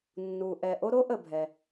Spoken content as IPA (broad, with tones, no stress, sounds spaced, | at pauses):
nː u˩ ʔ ɛ˩ ʔ o˥ ɾ o˥ ʔ ə˩ bʱ ɛ˩